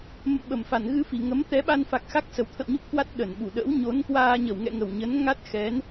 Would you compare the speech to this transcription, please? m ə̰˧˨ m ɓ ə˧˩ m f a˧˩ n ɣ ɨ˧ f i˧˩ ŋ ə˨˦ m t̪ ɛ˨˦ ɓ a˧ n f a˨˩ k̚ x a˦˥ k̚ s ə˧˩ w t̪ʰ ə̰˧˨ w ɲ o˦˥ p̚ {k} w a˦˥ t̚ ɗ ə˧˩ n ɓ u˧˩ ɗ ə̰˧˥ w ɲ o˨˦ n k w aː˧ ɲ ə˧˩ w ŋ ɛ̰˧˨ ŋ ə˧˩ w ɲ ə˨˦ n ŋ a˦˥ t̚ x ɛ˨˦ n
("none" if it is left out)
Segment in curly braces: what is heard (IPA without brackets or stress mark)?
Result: k